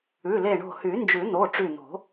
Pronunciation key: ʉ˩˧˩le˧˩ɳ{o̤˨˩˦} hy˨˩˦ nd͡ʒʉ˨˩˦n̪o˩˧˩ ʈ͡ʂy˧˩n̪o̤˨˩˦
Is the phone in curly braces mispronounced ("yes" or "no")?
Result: yes